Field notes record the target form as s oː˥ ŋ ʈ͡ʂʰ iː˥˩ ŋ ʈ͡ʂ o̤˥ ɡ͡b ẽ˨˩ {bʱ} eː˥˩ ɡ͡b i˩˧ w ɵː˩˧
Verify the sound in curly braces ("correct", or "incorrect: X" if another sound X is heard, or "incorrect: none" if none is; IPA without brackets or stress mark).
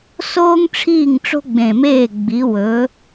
incorrect: m